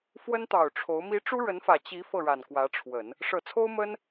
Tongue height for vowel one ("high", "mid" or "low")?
mid